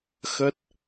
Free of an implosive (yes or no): yes